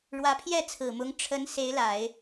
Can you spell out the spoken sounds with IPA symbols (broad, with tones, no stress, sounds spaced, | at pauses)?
ɻ w ä˧˥ pʰ j ɛ˥˩ t͡sʰ ɹ̩˨˩ m ʊ˧˥ ŋ ʈ͡ʂʰ ə˧˥ n s e˧˥ ɪ̯ l a˨˩˦ ɪ̯